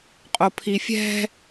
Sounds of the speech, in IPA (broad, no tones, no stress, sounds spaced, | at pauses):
qʼ o pʰ i fʲ ɛ̤